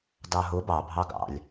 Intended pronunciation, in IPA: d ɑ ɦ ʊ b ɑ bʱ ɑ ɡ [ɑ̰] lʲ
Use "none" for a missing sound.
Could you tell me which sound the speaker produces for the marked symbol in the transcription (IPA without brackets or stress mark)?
ɑ̰